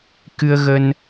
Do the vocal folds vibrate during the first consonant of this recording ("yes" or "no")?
no